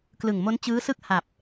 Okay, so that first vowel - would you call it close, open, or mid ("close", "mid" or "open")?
close